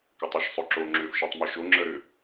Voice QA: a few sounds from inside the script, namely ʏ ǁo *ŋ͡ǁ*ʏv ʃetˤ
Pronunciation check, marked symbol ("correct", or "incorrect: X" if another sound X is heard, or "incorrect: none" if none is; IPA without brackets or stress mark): correct